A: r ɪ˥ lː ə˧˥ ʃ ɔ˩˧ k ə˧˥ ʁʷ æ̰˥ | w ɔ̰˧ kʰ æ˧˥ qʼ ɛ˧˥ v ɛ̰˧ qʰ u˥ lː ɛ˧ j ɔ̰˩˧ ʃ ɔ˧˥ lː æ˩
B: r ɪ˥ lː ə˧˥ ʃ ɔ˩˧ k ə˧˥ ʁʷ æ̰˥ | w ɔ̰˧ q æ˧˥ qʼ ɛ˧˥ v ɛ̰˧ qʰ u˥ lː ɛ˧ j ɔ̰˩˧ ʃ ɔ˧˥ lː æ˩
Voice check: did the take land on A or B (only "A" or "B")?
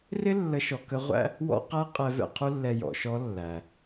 B